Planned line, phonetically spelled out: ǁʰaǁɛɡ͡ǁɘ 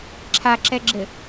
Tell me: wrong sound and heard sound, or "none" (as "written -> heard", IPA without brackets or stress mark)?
none